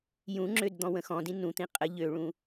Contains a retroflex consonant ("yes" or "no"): yes